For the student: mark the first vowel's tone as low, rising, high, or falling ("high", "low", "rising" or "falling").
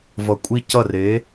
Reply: low